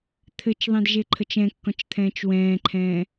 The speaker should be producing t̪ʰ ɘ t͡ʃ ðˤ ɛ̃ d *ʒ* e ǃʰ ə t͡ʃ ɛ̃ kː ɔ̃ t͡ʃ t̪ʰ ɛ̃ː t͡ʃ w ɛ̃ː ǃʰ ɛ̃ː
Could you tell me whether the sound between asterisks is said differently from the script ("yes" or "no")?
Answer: no